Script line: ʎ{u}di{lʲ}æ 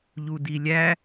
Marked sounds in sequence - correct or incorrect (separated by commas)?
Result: correct, correct